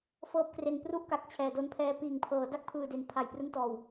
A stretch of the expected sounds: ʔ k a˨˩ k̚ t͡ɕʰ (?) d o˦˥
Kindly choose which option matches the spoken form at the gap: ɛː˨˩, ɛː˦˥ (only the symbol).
ɛː˨˩